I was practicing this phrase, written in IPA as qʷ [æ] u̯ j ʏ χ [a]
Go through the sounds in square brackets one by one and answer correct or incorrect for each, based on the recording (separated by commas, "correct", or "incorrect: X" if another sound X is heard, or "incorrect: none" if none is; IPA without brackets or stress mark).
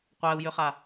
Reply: correct, correct